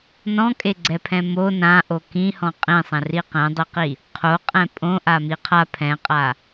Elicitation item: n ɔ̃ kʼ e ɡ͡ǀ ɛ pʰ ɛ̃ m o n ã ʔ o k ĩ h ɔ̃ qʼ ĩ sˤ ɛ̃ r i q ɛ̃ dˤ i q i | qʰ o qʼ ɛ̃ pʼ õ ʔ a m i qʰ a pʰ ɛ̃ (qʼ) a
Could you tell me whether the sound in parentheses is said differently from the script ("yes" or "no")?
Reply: no